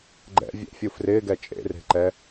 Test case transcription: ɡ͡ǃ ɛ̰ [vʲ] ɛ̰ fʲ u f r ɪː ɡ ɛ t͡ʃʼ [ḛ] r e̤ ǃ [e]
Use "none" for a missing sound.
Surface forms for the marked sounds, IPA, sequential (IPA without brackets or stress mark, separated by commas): vʲ, ḛ, ɛ